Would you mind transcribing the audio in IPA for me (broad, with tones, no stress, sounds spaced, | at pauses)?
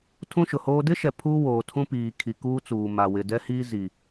tʰ ũ˦ ʃ ʊ˨ h oː˦ d ɪ˦ ʃ ɛ˨ pʰ uː˦ w oː˨ tʰ ũ˦ p iː˨ kʰ i˨ k uː˦ t͡s uː˨ m a˨ w ɪ˨ d ɛ˦ h iː˦ z i˨